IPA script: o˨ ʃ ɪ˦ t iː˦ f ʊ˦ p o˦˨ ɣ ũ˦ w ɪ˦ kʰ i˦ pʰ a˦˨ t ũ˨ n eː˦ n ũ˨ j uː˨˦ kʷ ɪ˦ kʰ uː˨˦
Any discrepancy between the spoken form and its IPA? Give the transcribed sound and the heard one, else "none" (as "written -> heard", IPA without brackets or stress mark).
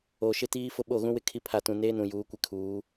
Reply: p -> ɓ